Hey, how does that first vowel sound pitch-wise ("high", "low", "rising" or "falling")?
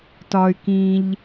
low